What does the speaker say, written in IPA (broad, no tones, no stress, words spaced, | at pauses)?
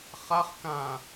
χaχ kã